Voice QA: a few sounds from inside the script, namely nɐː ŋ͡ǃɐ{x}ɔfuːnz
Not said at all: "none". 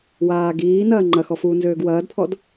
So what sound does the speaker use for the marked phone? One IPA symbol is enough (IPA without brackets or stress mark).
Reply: x